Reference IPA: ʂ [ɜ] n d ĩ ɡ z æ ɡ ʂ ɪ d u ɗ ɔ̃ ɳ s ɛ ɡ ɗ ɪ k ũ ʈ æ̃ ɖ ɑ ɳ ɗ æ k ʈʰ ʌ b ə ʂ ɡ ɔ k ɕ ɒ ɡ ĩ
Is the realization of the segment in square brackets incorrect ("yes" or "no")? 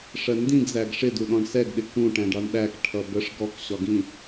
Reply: no